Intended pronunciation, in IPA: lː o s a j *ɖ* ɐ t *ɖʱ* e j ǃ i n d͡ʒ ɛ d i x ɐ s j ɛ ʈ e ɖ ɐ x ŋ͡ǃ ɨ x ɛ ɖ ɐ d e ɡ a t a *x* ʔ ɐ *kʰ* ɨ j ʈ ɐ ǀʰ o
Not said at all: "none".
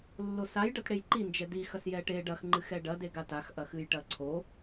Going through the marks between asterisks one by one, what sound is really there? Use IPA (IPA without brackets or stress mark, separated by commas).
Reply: ɖ, ɽ, x, x